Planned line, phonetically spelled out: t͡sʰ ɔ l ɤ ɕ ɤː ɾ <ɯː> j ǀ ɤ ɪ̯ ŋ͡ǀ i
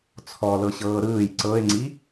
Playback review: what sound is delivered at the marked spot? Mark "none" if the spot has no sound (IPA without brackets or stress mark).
ɯː